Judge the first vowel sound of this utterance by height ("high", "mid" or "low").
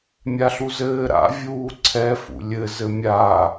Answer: low